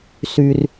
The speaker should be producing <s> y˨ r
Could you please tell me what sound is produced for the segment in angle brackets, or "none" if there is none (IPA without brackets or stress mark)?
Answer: s